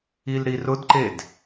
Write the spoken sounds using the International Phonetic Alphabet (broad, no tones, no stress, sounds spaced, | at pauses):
i l ɾ i r ʊ d ǃ e d